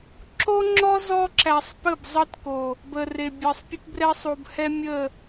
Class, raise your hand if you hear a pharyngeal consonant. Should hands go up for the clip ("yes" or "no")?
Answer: no